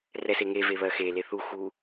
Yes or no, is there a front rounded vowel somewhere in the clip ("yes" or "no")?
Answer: no